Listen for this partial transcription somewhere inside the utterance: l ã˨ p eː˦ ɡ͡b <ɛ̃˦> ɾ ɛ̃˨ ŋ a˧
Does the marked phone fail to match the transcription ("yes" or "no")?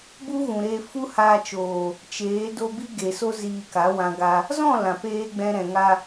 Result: yes